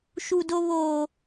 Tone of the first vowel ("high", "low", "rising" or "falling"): high